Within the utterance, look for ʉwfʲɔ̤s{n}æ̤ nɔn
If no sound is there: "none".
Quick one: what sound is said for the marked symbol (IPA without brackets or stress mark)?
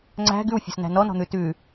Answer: n